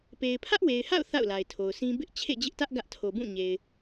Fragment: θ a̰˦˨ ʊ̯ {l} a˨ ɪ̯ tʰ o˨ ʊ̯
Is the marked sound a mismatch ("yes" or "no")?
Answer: no